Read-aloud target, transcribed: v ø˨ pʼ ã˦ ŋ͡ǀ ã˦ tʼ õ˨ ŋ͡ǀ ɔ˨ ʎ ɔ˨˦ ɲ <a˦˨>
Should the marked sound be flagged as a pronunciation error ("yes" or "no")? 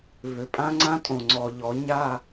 no